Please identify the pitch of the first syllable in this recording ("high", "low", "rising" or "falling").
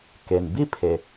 low